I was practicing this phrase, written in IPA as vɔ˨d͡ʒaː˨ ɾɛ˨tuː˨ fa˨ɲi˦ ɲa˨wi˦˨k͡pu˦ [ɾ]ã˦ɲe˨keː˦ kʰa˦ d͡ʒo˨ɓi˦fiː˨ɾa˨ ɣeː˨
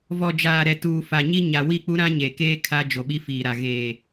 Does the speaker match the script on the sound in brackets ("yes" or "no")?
yes